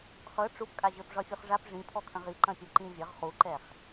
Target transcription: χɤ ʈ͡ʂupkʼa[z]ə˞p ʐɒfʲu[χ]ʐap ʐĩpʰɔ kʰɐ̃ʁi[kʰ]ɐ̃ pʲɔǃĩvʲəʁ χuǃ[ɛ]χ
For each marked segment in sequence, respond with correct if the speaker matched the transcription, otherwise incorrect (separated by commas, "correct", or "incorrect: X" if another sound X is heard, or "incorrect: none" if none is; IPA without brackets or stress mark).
incorrect: ʑ, correct, incorrect: ǃ, correct